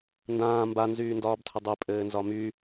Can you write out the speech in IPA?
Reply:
ndãː mbanzyːndɒːbtʰə dˤepʼɘːnzɒ my

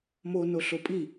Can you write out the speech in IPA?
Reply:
mo noɬopʼi

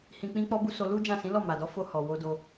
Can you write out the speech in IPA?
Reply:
hĩ˧k͡pĩ˦k͡pɔ˦bu˦ so˧lu˦ d͡ʒã˦˨sĩ˨˦lɔ˦˨ ma˨dɔ˨˦fo˧ hɔ˨ wo˧do˧

